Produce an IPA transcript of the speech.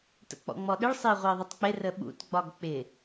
t ə̰ k͡p ɔ̰ ŋ͡m ɔ ɗ ɪ ɭ sˤ ɪː ʁʷ ɪː ðˤ ʊ tˤ k͡p ɪ r ə ɓ ṵ t ɡ͡b ɒ ɡ k͡p ɪ

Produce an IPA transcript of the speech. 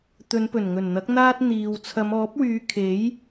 t̪ ɵ˨˧ n p ɵ˨˩ n ŋ ɵ˨˩ n n̪ ɐ˨˥ k̚ n̪ aː˥ t̚ n̪ iː˨ w t͡sʰ ɐ˨˧ m ɔː˨˥ p̚ w yː˨˧ kʰ e˨˥ j

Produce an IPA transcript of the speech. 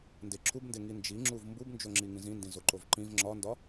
n d e ǁʰ u b n d e ŋ i n d͡ʒ i ŋ͡ǁ u v m b u b n d͡ʒ o ŋ͡ǁ i ŋ ĩ z ĩ n d ĩ z o ǃ o v ǃ ĩ v ŋ͡ǁ ɒ n d ɒ

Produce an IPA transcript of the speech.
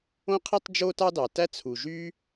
õ˥ qʰ i˥ tˤ d͡ʒ o˥ t ɑ˥ d ɑ˩ t æ˥ t͡sʰ u˩ ʒ y˥

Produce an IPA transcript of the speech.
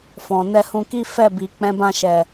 f ɔ̃˨ n ɛ˧ h ũ˧ k i˦ f ɛ˦˨ b i˨ k͡p ɛ̃˨˦ b ã˧ ʃ ɛ˨

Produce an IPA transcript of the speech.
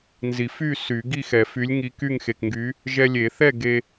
n z i˨˩˦ f y˥˨ s y˨˩˦ ɡ i˥˨ x ɛ˨˩˦ f y˨˥ lʲ ŋ i˨˥ k y˥˨ ŋ x e˩˧˩ k ŋ ɡ y˨˥ | ʒ ɛ˧ lʲ e˨˩˦ θ ɛ˥˨ ɡ e˧

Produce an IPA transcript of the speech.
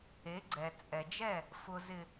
e˨˦ ɡ͡ǀ ɛ˨ t͡sʼ ɛ˨ d͡ʒ ɛ˦˨ | f ʊ˨ z ɪ˨

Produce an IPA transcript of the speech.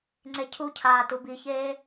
ŋ͡ǀ e cʰ u cʰ aː t u b i ç eː

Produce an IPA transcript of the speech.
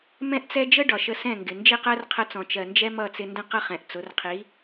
m ɛ̃˦ ʔ t͡s ɛ˦ d͡ʒ ə˦ ɖ ɒ˨ ʃ ə˧ s ɛ̃˦˨ ŋ ɡ ɪ˨ n d͡ʒ i˦˨ q ɜ˦ r qʰ ə˧ t͡s ɔ̃˨ t͡ʃ ɜ˨ n d͡ʒ ɛ˦ m ʌ˦˨ t͡s ɪ˧ n d ə̃˦ q ʌ˦ χ ɛ̃˨ ʔ t͡s ʊ˨˦ r qʰ i˨˦

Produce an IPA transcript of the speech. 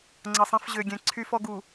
ŋ͡ǀ ʌ˨ sˤ ɛ̃˦ f ʑ ø˨ ɡʲ ɛ̃˨ ǀʰ y˦ f ɔ˦ ɡ u˨

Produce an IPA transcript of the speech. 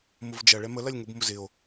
m ʊ v d͡ʒ ɐ ɭ ɛ m ə l ɐ lʲ ŋ ʊ b m ʊ z ɪ o̯

